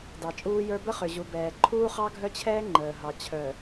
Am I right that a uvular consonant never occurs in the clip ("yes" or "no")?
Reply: no